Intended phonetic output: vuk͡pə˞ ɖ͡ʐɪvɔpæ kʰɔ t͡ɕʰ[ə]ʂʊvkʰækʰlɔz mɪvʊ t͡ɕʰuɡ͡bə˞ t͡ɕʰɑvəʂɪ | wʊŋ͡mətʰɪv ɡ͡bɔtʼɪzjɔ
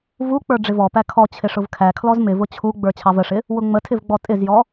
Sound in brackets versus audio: incorrect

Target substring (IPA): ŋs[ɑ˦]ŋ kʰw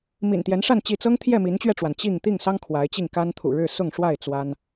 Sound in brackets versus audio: correct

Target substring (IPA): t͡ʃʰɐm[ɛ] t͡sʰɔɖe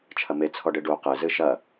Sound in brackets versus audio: incorrect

